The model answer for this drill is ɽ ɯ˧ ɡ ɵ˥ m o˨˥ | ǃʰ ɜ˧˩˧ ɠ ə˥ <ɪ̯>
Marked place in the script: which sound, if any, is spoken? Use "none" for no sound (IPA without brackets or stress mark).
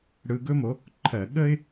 ɪ̯